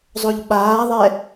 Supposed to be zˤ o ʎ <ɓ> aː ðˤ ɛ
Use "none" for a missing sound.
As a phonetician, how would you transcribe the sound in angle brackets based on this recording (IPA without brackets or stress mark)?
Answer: ɓ